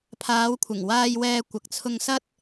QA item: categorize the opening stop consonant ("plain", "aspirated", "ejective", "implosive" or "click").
aspirated